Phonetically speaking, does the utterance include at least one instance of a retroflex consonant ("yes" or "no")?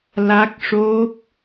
yes